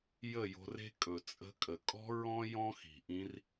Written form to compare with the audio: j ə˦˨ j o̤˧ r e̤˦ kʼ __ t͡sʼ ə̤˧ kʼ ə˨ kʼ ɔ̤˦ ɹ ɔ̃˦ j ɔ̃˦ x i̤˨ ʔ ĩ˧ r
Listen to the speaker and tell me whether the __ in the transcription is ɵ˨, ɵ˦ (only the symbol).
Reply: ɵ˨